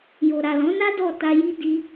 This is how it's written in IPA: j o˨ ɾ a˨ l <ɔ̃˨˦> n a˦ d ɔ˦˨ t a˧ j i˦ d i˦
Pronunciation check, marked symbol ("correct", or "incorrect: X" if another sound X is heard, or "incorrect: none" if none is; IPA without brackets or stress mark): correct